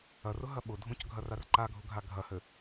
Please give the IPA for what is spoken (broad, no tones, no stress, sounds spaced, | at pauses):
ɐ r ʊ ɦ ɐ ɓ ʊ dʱ ũ c ɡʱ ɐ r a r ǃ a ɡʱ ʊ ɡʱ a ɡʱ ɐ h ɘ